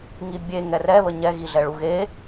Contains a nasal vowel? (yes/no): no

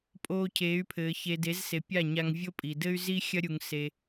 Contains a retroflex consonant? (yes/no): no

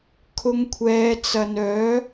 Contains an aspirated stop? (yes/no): yes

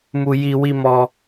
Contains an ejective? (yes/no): no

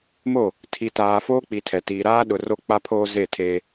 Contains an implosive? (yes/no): yes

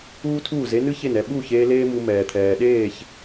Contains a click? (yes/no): no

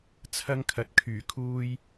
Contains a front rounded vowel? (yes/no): yes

